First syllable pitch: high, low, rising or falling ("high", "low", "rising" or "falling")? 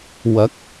rising